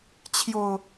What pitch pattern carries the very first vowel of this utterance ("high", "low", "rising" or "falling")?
low